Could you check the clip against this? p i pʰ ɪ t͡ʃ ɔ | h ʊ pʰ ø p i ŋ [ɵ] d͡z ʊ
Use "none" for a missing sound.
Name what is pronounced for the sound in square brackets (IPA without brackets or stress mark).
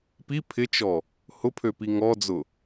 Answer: ɔ